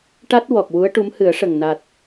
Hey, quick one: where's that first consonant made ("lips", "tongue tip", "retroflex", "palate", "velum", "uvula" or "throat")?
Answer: retroflex